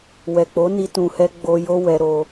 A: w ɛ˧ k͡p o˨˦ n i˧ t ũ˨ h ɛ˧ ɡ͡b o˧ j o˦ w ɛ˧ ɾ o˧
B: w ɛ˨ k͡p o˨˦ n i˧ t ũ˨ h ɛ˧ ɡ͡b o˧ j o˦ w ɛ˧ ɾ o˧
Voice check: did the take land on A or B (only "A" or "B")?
B